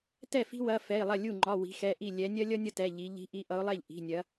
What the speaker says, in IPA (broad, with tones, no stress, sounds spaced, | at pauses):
t ɛ˥˩ f i̤˥ w ɐ˩˧˩ f ɛ˩˧˩ ɪ̯ lˠ ɐ˥˩ lʲ u˥˩ ŋ͡ǃ ɒ˩˧˩ w i̤˨˦ x ɛ˩˧˩ ʔ i˥˩ lʲ ɛ˨˦ nʲ ɐ˥ lʲ ʌ˥ nʲ ʌ˥ t ɛ˩˧˩ ʎ i˨˦ ʎ i̤˨˦ ʔ i˨˦ ʔ ʌ˨˦ ʊ̯ lˠ ɛ˥˩ ʎ ʔ i̤˩˧˩ nʲ ɐ˨˦